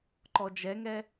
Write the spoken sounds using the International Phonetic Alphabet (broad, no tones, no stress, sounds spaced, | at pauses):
ǃ ɔ d͡ʒ ɛ ŋ ɛ